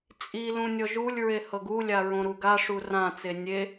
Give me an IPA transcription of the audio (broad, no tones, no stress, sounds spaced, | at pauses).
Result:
t͡sʼ i l ũ nʲ ɔ ʒ u lʲ ɹ e h ɤ ɡ u lʲ a ɹ õ ɾ u ɡ a ʂ u r ã t͡s e nʲ e